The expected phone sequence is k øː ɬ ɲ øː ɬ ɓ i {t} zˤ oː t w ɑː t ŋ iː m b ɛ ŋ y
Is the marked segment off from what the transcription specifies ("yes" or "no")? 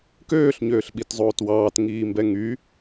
no